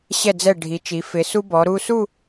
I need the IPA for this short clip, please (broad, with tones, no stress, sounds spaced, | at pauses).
ɕ ɛ˧˩ d͡z ɛ˧˩ ɖʱ i˩˧ t͡ʃ i˩˧ f ɪ˩˧ s u˧ b ɔ˩˧ ɾ u˧ s u˥˧